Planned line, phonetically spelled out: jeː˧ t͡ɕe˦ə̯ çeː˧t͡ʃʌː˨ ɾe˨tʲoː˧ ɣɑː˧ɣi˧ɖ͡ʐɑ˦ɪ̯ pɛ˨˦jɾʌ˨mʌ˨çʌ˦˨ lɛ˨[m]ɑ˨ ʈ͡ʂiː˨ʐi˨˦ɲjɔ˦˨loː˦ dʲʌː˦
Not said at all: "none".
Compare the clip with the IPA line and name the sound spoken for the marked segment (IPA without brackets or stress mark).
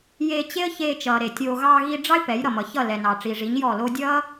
n